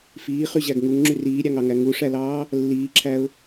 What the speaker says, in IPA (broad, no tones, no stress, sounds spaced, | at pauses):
f iː χ y ʑ æ ɡ ŋ u ŋ ŋ͡ǁ y r iː ɾʲ ɑ ŋ ɑ ŋ æ ŋ u ʂ æ l ɑː | lː iː ǁʰ æ ʊ̯